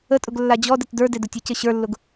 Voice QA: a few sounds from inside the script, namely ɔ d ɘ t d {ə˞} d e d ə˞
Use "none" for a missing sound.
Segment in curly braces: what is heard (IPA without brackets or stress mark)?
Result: ə˞